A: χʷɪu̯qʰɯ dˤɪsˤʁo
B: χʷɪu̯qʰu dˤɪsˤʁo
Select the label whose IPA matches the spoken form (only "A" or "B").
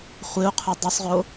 B